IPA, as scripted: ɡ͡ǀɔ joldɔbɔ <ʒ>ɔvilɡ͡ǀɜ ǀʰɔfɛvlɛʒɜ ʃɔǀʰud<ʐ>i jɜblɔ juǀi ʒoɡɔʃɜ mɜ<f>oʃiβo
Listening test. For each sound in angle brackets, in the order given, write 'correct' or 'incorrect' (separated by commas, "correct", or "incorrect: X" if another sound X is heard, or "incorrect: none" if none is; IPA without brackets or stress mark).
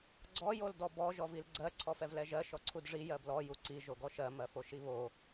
correct, correct, correct